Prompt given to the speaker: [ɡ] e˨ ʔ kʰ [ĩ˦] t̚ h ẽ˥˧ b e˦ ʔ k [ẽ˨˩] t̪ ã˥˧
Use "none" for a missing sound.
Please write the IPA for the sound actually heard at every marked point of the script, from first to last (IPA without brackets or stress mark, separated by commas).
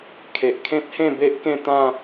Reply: kʰ, ẽ˦, ẽ˥˧